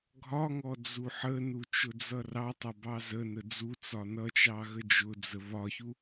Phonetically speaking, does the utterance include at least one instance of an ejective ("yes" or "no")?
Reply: no